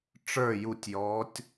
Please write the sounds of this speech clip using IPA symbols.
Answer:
ʈ͡ʂ ə˞ j u tʲ j ɔː tʲ

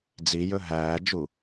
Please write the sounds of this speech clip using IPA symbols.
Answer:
d͡z i j ɵ ɦ æː d͡ʒ u

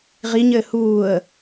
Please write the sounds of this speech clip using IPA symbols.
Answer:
ʁ i ɲ ɘː h uː ə̯

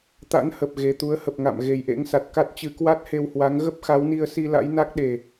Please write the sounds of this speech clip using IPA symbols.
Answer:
t̪ a̰˧˥ n h ə˨˩ p̚ ɣ e˨˩ t̪ u˨˦ ə̯ h ə˨˩ p̚ ŋ a̰˧˨ m ɣ e˨˩ j ʔ ḛ˧˥ ŋ s a˨˩ t̚ k a˦˥ t̚ t͡ɕ ɨ˨˦ k w a˦˥ t̚ h e˧ w h w a˨˦ ŋ ɣ ə˦˥ p̚ x a˨˦ w n i˧ ə̯ s i˧ l a̰˧˥ j n a˦˥ k̚ ɗ e˨˩

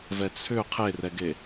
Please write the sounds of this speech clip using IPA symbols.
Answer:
v ɛ t͡sʰ ʏ qʰ e r ɛ ɡ e

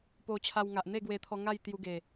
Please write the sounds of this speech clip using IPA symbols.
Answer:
p o˧ t͡ɕʰ a˧ w ŋ a˨ ʔ n̪ e˥˧ ɡ w e˧ t̪ʰ ɔ˧ ŋ a˥˧ j t̪ j u˧ ɡ e˨˩

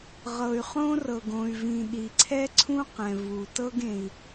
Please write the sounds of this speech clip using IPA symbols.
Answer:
ʁ ɤ˩ y̯ χ õ˥ r ɤ˩ ɡ õ˩ y̯ v ĩ˩ ɗ i˩ ǀʰ ɛ˥ ǀʰ ũ˥ q ɛ̃˩ v u˩ t ɤ˥ ɡ ẽ˩ i̯

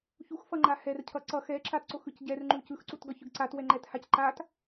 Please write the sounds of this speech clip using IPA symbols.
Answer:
ç u x f ʌ ŋ͡ǃ a h ɛ r cʰ ʌ ǀ ʌ x ɛ ǁ a t ǀ o x ɯ c ɟ ɛ r ŋ͡ǃ u c ɯ x ǀ u t ɡ ʌ ç ɯ ɡ ǀ a t w ɛ ŋ͡ǃ ɛ t h a c ǃ a t

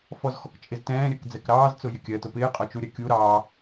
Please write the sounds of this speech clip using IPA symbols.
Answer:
f ɔ z x ɔ k t͡ʃʼ ɪ z t ɛ̃ː ɾʲ ɜ k d͡z ɛ k ɾ ɑː z t͡s ʊ j ɪ kʲ ɜ t ʊ p ɪː qʼ ɒ t͡ʃ u ɾʲ ɜ kʲ u ɾ ɑː

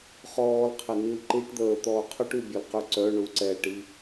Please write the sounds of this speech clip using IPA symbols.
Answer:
χ ɔː l qʰ ɛ n i l ǃ i ʈ d̪ əː t̪ ɔː qʰ œ ʈ y bʲ ɔ l q y ǀ œ ɳ u ǀ ɛː ʈ i

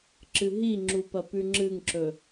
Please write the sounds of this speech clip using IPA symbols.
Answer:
ǁ ɨ ɦ i ŋ͡ǁ u p ɐ p ʉ ŋ͡ǁ ɨ ŋ ǁ ɵ

